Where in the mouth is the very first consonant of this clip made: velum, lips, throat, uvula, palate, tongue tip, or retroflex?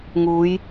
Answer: velum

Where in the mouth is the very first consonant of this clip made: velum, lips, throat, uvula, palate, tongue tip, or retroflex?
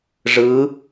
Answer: retroflex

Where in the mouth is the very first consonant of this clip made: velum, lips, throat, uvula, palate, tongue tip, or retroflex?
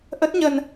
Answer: throat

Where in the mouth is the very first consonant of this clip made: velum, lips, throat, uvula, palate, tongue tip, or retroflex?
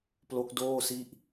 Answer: lips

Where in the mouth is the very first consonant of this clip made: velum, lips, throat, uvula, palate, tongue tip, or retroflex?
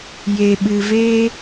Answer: palate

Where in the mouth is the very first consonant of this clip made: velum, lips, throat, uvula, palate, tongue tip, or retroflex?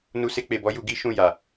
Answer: tongue tip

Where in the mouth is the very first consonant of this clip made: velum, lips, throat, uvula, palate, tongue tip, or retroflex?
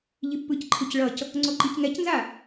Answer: palate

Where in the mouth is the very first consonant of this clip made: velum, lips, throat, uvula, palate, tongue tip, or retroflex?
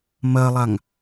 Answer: lips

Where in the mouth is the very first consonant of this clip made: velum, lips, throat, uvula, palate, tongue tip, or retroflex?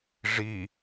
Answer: retroflex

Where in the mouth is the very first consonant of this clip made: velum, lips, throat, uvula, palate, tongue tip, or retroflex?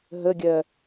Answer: throat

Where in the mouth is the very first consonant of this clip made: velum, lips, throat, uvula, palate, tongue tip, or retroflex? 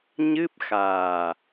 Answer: palate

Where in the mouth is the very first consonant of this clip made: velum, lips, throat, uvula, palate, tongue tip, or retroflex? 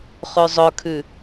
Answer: uvula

